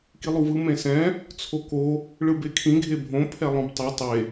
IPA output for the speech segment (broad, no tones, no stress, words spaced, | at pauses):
kilˠuvɯ mẽsɛ̃ | t͡sʰoko | ɭɯbekʰĩ ɡʱebʱõ pʰɛlˠõbtˤo tˤe